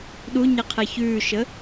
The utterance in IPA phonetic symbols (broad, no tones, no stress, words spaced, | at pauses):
ɗuɲɛqʰɛ çʉːʃə